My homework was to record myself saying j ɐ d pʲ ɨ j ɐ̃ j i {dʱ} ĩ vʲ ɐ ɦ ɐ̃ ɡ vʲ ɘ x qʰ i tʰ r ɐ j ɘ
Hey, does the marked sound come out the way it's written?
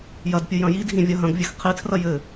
yes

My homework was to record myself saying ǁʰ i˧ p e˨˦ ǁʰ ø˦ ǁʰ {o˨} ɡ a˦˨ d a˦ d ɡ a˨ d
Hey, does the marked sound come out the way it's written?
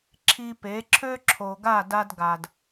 yes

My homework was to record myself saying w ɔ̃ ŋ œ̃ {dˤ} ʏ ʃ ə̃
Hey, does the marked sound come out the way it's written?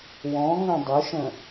yes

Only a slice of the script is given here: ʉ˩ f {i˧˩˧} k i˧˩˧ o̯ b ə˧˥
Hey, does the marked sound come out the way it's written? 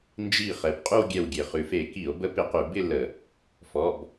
no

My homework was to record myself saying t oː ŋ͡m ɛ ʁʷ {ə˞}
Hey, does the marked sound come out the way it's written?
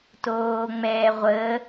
no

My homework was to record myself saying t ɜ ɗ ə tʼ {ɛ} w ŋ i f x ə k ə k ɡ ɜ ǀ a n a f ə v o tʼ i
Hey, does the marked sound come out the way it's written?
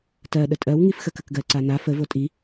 no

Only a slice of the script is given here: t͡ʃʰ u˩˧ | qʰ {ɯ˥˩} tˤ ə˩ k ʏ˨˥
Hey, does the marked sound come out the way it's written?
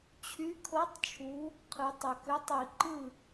no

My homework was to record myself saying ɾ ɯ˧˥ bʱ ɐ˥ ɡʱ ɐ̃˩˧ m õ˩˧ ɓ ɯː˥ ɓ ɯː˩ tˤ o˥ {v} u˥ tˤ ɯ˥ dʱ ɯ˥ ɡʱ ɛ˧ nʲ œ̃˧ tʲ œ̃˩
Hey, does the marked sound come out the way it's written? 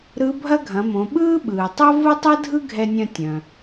yes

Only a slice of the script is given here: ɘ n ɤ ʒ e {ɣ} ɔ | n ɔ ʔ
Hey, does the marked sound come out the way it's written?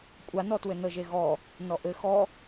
yes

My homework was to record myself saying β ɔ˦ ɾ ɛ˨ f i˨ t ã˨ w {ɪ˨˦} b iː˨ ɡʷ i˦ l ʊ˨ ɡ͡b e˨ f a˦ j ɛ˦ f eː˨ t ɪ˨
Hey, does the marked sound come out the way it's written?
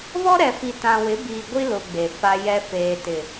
yes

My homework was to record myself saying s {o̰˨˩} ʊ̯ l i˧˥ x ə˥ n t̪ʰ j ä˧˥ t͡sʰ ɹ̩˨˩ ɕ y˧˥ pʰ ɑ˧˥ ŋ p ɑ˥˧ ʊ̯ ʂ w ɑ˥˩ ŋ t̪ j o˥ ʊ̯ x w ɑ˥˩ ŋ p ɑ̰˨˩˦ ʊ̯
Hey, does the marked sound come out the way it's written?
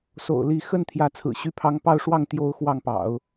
yes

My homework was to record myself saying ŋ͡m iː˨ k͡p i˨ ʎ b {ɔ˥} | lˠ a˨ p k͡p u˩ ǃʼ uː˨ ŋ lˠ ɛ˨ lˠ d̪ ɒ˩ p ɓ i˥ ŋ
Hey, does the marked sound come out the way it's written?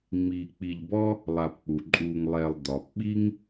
yes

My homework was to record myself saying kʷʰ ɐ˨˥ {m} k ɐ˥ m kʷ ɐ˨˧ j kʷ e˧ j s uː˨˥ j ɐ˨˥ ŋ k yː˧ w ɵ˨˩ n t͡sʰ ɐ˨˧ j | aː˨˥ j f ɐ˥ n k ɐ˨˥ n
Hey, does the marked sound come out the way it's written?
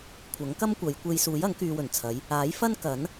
no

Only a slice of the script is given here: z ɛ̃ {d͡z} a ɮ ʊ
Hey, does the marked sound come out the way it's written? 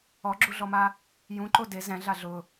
no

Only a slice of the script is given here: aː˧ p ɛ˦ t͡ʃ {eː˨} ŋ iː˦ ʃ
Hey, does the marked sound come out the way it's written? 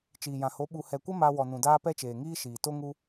yes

